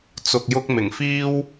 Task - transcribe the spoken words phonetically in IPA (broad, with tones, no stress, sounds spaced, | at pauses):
t͡s ʊ˧ k̚ j ʊ˥ k̚ m ɪ˨˩ ŋ f iː˥ w